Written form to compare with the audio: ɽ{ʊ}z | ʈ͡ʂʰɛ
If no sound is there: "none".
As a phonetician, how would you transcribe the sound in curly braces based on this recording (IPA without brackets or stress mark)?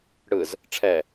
ɯ